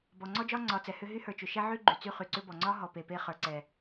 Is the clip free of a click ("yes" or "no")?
no